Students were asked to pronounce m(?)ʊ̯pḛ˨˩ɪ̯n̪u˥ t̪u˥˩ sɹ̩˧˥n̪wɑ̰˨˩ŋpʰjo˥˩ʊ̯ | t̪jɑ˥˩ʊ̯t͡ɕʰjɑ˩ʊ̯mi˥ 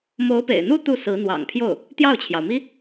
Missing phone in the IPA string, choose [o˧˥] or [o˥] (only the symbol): o˧˥